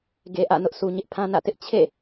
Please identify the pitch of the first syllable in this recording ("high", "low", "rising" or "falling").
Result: low